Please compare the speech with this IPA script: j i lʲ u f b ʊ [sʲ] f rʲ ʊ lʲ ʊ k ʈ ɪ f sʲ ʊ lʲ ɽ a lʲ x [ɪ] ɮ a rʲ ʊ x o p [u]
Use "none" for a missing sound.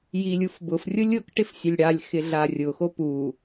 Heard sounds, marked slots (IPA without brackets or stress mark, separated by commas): none, ɪ, u